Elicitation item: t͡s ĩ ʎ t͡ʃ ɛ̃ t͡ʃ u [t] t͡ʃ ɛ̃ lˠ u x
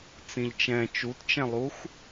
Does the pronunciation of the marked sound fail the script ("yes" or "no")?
no